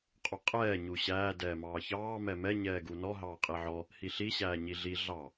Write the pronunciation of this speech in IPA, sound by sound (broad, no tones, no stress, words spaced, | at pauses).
qʼuqʼɛː ɲuɕæː dɛːmɑːçɑː mɛmɛ ɲɛːɡunɔ ɦɑːqʼiʕɔ | hiɬi ɕæːɲiɮi ɮɑ